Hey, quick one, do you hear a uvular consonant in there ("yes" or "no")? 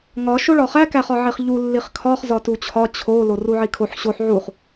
yes